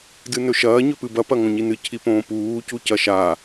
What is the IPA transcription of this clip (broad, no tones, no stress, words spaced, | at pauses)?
dɨnɵʃɐː ɲɵpɨbɐ pɐŋõɲinɨ cʰipõːpuː cucɐʃa